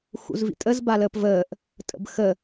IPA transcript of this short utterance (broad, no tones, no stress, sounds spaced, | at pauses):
x ṵ z v ḭ tʼ ə z b a l əː p v əː ʔ | tʼ ə̰ b x ə